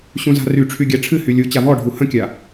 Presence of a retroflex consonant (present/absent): present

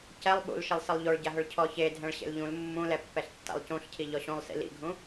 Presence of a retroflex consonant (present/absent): present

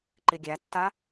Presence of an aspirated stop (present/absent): absent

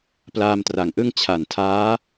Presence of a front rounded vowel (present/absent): absent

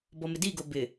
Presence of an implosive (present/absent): absent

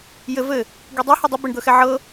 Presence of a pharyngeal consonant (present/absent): present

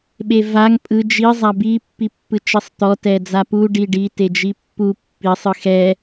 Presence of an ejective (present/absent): present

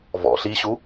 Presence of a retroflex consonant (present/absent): absent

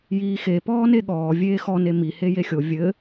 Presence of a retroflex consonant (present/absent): absent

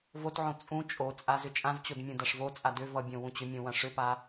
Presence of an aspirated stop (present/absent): absent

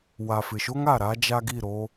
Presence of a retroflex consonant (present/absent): absent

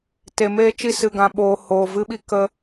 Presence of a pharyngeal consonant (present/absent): absent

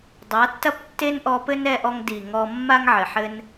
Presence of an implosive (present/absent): absent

